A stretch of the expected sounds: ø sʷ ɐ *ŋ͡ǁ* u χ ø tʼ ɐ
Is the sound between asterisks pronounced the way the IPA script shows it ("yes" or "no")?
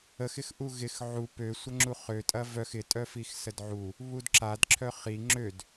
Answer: yes